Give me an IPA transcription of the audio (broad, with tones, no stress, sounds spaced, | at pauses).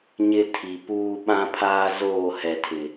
ɲ ɪ˦ tʰ i˨ p uː˦ ɓ ã˦ pʰ aː˦ z oː˦˨ h ɛ˨ tʰ ɪ˨